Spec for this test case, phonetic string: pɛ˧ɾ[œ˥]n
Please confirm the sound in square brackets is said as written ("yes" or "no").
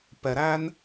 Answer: no